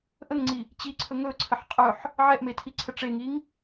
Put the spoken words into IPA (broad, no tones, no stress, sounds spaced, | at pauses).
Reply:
ʔ ə ŋ ŋ͡ǀ i | t͡ɕ i ǀʰ ɵ ŋ ɵ ǀʰ ə ħ qʼ ɵ ħ | ʕ ɛ ʔ m e tʰ i ǀʰ ə ʈ͡ʂ e ŋ i ŋ